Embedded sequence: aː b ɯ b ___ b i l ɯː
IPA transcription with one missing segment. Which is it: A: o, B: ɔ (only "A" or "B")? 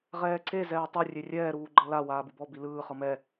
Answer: B